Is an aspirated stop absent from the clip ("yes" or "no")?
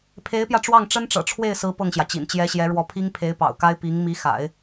no